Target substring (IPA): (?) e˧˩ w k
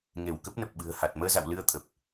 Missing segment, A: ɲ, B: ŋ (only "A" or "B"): B